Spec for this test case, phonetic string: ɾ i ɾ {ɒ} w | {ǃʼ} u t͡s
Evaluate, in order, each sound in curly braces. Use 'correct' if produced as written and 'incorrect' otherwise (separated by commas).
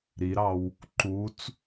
incorrect, incorrect